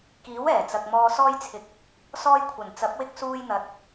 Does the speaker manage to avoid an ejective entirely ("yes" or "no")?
yes